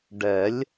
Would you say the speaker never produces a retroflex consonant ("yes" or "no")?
no